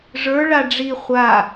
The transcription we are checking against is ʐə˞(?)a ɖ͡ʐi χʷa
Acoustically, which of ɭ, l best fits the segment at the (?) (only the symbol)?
ɭ